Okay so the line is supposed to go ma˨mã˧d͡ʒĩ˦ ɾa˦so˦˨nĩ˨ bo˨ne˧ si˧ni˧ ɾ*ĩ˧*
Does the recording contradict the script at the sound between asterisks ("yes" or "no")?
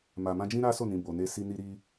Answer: yes